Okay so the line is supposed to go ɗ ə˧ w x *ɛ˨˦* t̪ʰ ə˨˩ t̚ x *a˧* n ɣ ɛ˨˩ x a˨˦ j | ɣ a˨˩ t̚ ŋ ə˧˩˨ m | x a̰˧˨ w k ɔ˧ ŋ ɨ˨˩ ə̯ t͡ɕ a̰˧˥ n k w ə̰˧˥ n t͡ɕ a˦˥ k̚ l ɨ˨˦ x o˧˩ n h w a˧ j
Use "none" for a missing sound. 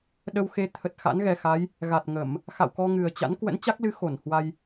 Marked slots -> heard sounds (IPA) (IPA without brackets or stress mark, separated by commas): e˨˦, a̰˧˥